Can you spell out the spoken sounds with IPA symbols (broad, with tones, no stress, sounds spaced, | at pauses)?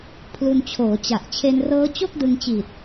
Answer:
pʰ l u˧ n t͡ɕʰ oː˩˦ t͡ɕ a˨˩ ʔ t͡ɕʰ e˧ n r ɤː˦˥ t͡ɕ o˥˩ k̚ d ɯ˧ ŋ t͡ɕ iː˨˩ t̚